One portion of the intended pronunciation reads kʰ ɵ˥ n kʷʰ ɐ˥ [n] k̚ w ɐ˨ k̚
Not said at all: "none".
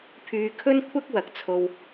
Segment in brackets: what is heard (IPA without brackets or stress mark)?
none